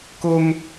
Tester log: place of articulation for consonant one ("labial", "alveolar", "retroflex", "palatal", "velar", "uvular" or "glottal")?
velar